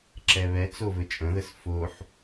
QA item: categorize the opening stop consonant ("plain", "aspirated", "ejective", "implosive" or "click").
click